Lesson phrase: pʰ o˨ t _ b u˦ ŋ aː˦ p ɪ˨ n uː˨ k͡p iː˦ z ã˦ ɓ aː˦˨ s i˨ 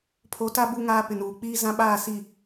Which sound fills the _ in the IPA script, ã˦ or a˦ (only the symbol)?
a˦